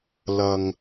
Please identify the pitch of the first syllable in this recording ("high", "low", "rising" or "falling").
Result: low